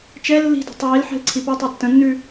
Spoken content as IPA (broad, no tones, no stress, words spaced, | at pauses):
t͡ʃɛ lːi̤di̤ tˤiːlħɛ̤l ǀʰipɜtˤɜ tːə̃nːʉ